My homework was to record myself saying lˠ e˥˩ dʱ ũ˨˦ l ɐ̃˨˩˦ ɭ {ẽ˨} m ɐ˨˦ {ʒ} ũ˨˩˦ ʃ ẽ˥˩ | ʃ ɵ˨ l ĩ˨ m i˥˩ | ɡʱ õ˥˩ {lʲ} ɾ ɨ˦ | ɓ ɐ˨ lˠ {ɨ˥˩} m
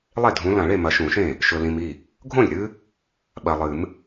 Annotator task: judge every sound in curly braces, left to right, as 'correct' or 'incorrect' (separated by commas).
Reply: incorrect, incorrect, correct, incorrect